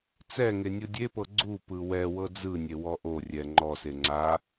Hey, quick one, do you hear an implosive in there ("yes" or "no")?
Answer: no